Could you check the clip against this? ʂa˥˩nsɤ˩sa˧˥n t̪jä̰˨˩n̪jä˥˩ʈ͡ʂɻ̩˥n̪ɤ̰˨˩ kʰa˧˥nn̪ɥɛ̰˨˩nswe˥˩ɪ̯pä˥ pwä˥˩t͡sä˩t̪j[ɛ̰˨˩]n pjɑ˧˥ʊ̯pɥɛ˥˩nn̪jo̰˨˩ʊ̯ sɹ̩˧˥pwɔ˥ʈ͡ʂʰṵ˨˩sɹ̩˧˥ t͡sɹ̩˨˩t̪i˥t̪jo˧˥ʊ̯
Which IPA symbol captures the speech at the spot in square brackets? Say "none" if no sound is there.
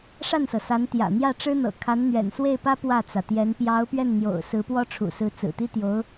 ɛ˧˥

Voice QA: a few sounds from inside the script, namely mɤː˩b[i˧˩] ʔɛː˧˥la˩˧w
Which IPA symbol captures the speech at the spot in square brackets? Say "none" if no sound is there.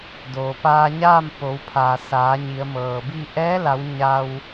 i˥˨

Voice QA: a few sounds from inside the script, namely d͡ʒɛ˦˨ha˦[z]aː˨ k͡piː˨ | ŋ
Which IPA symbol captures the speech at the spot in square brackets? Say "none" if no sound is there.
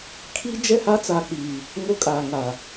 t͡s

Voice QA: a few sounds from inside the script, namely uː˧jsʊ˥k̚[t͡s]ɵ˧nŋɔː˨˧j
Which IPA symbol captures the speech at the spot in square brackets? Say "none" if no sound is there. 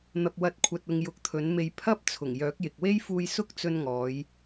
t͡s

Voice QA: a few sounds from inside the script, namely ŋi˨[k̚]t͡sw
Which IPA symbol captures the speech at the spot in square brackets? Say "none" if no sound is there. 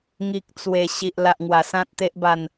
k̚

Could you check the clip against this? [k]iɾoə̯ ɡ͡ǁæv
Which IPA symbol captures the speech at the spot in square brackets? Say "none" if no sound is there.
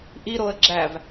ʔ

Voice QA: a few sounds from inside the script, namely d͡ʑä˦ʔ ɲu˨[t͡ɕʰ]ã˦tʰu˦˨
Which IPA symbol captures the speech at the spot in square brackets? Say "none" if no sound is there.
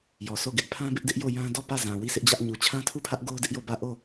t͡ɕʰ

